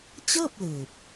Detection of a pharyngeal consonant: absent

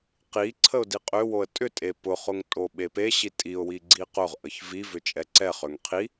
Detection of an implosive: present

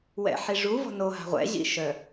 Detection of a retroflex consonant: present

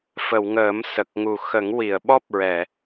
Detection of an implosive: present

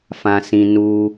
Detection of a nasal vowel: present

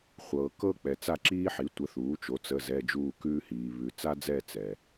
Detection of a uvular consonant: present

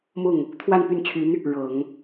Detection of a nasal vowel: absent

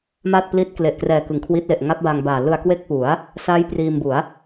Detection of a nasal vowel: absent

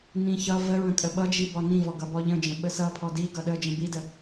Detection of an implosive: present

